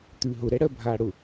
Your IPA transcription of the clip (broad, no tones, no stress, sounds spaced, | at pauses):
t̪ ʉ ɦ ʊ ɾ ɛ ɽ ɜ bʱ aː ɽ ʊ